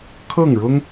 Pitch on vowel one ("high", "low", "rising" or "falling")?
falling